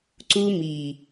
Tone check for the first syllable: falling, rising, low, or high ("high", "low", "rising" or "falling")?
high